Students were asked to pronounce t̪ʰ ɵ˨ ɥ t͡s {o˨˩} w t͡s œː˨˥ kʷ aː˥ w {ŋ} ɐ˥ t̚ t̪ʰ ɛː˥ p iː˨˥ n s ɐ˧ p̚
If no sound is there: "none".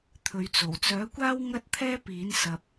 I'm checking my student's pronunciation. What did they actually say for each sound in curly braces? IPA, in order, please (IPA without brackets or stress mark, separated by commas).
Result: o˨˩, ŋ